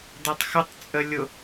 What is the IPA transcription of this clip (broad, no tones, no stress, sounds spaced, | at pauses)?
d ʌ tˤ x ə tˤ t͡sʼ ə lʲ ʊ